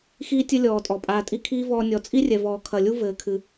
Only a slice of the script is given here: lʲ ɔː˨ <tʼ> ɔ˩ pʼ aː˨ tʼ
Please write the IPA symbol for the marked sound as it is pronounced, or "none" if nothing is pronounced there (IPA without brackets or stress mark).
tʼ